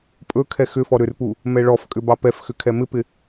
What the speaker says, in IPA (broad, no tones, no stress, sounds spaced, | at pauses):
pʼ ɵ kʰ ɛ x ʏ f ɔ ɾ ʏ r p u | m ɛ ɭ ɔ f kʼ ʏ b ɑ p ɛ f x ʏ kʰ ɛ m ɪ p ɪ